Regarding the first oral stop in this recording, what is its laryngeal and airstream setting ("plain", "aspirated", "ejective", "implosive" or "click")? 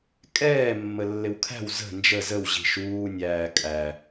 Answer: ejective